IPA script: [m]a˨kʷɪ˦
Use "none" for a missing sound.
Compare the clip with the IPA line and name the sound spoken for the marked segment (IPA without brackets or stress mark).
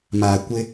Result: m